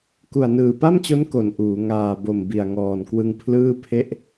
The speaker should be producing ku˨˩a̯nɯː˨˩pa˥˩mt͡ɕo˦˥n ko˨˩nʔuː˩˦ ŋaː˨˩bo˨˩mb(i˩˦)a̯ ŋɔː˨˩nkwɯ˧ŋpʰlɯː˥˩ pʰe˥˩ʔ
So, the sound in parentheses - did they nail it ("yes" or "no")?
no